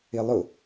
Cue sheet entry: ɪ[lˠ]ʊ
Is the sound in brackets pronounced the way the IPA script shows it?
yes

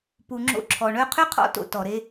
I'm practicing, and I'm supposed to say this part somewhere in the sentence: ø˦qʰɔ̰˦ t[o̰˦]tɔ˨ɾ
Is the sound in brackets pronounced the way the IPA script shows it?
yes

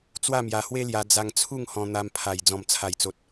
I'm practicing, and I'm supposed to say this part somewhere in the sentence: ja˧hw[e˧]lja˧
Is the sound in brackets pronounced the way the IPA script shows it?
no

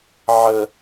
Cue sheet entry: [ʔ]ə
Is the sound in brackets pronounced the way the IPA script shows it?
no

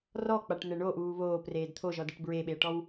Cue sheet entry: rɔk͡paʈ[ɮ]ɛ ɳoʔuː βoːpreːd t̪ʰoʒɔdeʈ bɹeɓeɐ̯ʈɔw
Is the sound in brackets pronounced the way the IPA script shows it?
no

